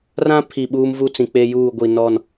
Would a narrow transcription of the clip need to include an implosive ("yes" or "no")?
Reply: yes